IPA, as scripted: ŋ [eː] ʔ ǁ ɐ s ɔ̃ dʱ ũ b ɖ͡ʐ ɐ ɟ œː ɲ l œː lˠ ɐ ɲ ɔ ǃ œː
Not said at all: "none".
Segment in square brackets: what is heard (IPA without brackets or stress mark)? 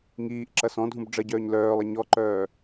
iː